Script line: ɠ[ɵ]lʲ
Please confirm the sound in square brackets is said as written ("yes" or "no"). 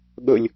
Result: yes